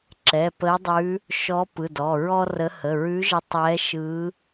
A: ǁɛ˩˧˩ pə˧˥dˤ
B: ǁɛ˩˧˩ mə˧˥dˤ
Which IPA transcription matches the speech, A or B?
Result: A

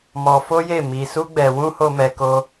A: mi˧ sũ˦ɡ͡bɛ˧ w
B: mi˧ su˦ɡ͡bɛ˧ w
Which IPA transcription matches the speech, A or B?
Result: B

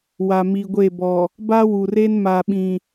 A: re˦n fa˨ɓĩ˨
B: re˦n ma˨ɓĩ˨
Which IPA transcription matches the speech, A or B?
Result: B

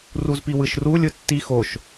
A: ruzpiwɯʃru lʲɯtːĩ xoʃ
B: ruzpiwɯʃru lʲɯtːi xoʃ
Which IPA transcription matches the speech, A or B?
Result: B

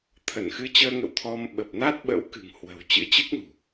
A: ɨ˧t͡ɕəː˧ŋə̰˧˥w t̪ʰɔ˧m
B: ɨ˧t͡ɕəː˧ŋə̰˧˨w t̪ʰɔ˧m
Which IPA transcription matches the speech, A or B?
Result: B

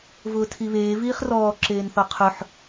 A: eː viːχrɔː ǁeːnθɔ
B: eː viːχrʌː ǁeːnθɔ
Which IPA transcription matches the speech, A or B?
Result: A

